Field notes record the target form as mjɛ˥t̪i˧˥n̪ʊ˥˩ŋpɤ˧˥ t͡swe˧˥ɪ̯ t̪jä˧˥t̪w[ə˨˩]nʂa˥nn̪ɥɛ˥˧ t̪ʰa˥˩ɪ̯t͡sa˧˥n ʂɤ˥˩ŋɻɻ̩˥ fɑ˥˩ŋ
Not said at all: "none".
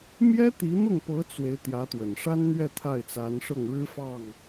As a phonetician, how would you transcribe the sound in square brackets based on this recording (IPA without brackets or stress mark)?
ə˨˩